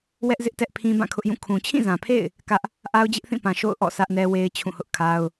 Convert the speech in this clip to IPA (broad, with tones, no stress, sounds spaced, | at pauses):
w ɛ˦ ʔ z ɪ˦ ʔ t ɛ˦ ʔ pʰ ĩ˦ b ã˦˨ kʰ ʊ˦ ʔ j ũ˦˨ kʰ ũ˨ t͡ɕʰ ĩ˦˨ z ã˨ pʰ ḛ˦˨ ɪ̯ | k ä˦ ʔ | ʔ a˦ ʊ̯ d͡ʑ ɪ˦ ʔ θ ĩ˦˨ p ã˨ ʃ o̰˦˨ ʊ̯ ʔ ɔ̰˦˨ s ä˦ ʔ n ɛ˦ w e˦ ɪ̯ t͡ɕʰ ũ˦˨ h ʊ˦ ʔ kʰ a˦ ʊ̯